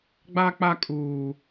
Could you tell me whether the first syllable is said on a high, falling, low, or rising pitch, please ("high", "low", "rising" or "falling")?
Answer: high